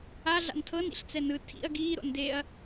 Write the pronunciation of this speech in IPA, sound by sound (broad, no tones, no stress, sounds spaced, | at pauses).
a ɮ a̰ n tʰ ɤ n ḭ ɬ t͡s ɛ n ɯ tʰ ḭ ɐ̯ ɡ iː ɾ o̰ n d e ɐ̯